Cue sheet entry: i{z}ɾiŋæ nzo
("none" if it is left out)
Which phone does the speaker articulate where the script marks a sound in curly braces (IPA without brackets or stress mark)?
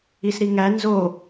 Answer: s